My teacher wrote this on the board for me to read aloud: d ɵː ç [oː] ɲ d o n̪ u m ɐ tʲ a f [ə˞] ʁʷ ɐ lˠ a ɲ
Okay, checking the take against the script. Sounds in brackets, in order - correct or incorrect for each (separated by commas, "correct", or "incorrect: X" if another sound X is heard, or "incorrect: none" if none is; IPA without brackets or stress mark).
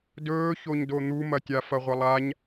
incorrect: o, incorrect: ɐ